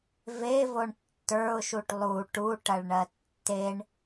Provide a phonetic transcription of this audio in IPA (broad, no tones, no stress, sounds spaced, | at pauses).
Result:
v e v o ɳ tː ə˞ ʊ̯ ʃ u ʈ lˠ u ʈ u ʈ ɐ ɭ ɳ ɜ tː e ɳ